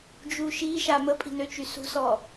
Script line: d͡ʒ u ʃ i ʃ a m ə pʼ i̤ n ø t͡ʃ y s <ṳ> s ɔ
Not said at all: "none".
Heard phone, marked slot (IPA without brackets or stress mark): ṳ